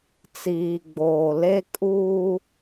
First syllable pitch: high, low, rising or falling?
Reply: low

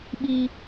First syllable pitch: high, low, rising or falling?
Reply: high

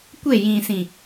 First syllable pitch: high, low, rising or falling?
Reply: falling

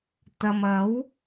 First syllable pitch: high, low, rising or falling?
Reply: low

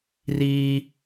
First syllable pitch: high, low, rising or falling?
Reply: high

